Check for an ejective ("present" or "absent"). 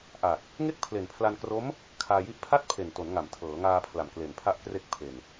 absent